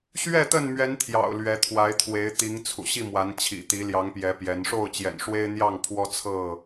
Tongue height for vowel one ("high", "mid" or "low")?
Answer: mid